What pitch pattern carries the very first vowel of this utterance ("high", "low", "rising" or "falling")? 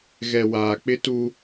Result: low